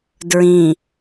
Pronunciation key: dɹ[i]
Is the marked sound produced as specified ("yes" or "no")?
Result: no